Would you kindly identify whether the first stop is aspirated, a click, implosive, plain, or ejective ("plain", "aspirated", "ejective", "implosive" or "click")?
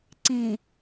click